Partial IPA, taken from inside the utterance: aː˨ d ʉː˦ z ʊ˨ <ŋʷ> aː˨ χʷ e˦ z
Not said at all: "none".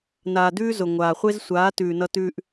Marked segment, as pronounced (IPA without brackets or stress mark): ŋʷ